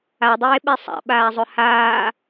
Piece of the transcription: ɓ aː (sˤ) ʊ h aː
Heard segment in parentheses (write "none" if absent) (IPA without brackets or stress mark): zˤ